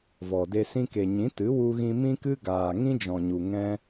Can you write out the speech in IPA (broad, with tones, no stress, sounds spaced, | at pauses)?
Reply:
v ɔ˨ d e˧ s ĩ˧ k e˨ ɲ ĩ˨˦ t ɨ˨˦ w u˧ ɣ ĩ˧ m ĩ˧ k ɨ˧ ɡ aː˨ ŋ ĩ˦ d͡ʒ ɔ̃˨ ɲ u˨ ŋ ɛ̃˧